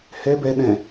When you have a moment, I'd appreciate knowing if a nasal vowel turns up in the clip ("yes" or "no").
yes